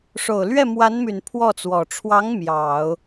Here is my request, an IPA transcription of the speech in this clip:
ʂ o˨˩ ʊ̯ l ɥ ɛ˥˩ m w a˧˥ n m y˨˩ n pʰ w ɔ˥˩ t͡s w ɔ˨˩ ʈ͡ʂʰ w ɑ˧˥ ŋ m j ɑ˨˩˦ ʊ̯

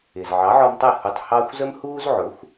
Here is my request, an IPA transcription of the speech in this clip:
ɪː˩ z ʕ ɑ˩˥ ʕ ɔ˧ m tˤ ɛ˥˩ h u˧ tˤ h ɑ˥ xʷ z ə˥ m h uː˥ z ʕ ʊ˩˥ xʷ

